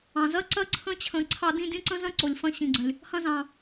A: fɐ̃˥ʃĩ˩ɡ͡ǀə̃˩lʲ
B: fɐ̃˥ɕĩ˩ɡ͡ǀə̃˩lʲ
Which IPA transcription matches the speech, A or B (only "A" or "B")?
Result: B